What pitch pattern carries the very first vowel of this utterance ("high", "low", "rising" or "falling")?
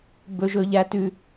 high